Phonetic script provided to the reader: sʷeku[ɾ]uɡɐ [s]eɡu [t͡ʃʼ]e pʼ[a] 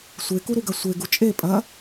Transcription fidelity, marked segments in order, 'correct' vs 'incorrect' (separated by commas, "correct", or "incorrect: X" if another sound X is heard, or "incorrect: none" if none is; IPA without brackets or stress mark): correct, incorrect: sʷ, correct, incorrect: ɐ